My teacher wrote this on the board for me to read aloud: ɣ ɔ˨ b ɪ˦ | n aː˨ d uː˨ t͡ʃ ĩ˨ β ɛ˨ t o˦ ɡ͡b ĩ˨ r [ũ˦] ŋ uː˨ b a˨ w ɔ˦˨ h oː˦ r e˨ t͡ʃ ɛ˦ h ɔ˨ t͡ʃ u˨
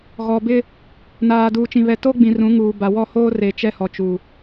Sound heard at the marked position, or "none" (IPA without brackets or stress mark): ũ˨˦